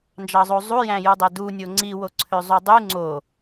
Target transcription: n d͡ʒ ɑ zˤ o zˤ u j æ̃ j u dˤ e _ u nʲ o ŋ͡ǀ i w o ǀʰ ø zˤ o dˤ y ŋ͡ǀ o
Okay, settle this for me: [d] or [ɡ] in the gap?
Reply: d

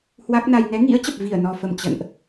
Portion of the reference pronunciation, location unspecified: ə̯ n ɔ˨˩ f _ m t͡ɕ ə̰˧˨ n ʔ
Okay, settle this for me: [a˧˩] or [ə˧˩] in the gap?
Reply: ə˧˩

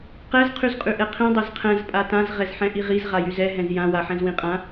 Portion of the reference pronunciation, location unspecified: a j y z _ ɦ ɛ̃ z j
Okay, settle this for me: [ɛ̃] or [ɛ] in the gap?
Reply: ɛ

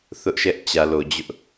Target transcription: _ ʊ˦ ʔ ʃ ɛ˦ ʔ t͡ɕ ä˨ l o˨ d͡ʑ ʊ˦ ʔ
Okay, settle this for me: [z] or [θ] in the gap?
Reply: θ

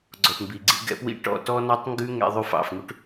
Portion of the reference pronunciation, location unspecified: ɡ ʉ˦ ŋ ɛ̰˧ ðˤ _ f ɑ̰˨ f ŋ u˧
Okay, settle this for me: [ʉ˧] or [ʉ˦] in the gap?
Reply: ʉ˧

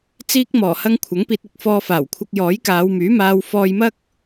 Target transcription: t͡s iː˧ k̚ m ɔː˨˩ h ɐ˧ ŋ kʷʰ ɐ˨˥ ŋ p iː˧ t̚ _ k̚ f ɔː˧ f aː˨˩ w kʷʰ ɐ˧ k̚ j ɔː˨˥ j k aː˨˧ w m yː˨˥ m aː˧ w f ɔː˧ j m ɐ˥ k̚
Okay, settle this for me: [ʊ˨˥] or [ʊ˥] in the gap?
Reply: ʊ˨˥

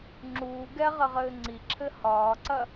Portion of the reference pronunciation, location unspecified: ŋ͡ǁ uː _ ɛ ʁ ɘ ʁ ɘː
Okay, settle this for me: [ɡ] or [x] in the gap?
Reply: ɡ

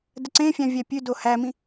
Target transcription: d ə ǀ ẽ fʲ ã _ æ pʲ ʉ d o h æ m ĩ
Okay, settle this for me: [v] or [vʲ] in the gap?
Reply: vʲ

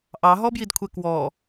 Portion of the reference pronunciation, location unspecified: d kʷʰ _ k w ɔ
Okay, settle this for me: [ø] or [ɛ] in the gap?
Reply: ɛ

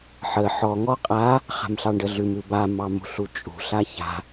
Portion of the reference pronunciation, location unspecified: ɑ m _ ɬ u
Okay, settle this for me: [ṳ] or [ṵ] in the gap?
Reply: ṳ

